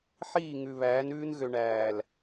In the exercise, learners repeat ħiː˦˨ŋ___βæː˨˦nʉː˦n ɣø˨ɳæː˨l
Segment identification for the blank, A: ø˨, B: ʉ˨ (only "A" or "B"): B